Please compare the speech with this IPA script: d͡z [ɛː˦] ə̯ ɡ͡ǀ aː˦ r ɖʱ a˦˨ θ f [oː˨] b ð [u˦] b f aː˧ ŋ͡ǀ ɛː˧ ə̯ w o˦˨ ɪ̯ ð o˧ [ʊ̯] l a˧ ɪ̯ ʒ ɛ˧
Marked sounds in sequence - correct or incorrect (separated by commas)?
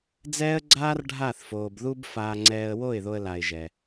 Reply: correct, correct, correct, incorrect